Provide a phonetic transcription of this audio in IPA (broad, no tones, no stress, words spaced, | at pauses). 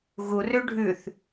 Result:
ɣurø ɖʱʉθ